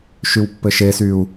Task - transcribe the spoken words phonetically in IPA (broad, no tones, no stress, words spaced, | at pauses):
ʃywpːɘʃesyu̯